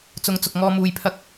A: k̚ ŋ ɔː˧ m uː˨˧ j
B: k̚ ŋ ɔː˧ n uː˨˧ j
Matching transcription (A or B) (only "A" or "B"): A